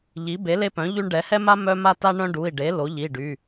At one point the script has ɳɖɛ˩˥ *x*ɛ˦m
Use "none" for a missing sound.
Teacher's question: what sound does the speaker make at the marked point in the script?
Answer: h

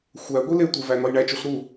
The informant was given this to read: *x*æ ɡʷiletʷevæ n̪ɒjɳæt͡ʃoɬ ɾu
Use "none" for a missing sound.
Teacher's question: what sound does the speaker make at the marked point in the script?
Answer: xʷ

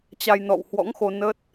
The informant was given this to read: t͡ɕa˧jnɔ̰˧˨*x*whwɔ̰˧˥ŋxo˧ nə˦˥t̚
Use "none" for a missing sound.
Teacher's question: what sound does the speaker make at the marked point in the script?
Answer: none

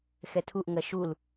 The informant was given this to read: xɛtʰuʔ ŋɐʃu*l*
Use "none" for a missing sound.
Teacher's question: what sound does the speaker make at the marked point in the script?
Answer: l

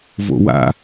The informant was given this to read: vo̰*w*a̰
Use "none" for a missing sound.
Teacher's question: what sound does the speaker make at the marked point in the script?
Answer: w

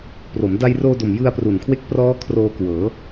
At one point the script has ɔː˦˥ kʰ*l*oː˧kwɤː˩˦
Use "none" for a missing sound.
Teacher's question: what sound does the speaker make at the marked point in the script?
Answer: r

